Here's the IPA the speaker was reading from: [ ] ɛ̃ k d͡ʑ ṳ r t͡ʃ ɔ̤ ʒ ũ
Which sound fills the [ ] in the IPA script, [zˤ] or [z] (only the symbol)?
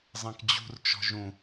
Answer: zˤ